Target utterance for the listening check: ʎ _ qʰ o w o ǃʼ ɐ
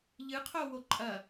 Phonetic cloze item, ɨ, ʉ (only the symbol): ɨ